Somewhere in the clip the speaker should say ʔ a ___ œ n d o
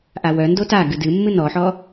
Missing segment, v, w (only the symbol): w